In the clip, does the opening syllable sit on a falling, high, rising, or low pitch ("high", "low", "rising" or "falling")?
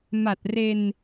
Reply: low